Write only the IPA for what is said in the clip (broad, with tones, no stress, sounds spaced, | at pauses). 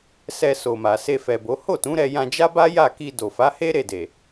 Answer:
s ɛ˧ s o˨ m a˨ s e˧ f ɛ˨ b o˨˦ h o˦˨ t ũ˨˦ ɾ ɛ˧ j ã˧ d͡ʒ a˦ b a˦ j a˦˨ k i˧ d o˨ f a˨˦ h e˦ ɾ e˦˨ d e˨